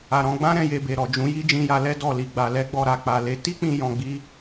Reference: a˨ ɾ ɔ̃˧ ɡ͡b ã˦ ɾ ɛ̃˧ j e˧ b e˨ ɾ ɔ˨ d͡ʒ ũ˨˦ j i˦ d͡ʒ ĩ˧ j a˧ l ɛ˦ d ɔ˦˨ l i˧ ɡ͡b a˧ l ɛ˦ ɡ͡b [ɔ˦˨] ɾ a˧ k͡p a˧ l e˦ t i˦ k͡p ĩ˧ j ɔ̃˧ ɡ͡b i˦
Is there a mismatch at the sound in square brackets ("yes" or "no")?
yes